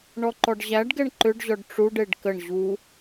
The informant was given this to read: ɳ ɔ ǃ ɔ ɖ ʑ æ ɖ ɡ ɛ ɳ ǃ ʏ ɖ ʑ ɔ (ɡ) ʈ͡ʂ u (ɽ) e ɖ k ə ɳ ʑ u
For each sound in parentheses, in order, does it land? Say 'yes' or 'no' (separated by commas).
no, no